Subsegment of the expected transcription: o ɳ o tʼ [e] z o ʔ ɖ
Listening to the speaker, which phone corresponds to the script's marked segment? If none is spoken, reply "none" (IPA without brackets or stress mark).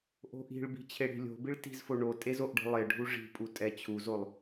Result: e